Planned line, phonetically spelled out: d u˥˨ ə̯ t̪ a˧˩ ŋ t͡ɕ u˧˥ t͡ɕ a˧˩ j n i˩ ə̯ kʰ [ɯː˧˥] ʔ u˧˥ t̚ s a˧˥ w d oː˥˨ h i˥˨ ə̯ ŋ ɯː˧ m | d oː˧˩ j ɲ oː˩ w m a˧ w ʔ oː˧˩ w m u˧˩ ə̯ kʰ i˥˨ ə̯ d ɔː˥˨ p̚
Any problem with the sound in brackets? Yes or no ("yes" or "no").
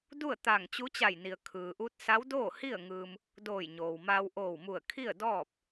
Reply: yes